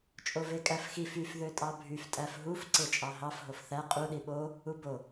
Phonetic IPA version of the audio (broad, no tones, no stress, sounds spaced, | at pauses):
t͡ʃʼ o v e kʼ æ f x i f y f ð ø tʼ ɑ bʱ y f tʼ æ f ɦ u f ǀ e t͡ʃʼ ɑ ɦ ɑ f ɦ o f θ æ qʼ u ɗ i ɓ o | u b o